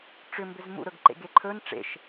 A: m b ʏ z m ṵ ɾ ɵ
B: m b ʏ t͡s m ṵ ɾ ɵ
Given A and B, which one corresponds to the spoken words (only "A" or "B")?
A